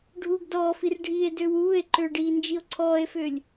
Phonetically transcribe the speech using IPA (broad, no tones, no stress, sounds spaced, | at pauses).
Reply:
ɖʱ uː ɡ d ɔː f i r ɖʱ iː e̯ d ʏː w uː e̯ ǃ ʏː ɖ iː n d͡ʒ i o̯ ǀʰ ɔː e̯ f ʏː lʲ